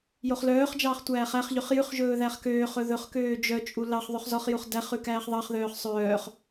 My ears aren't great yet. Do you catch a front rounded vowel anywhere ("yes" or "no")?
yes